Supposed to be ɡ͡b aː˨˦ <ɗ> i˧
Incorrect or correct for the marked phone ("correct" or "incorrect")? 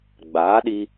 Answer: correct